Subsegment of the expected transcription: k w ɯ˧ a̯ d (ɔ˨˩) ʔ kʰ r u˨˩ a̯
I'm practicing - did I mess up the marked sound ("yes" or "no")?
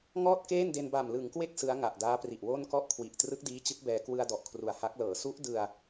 no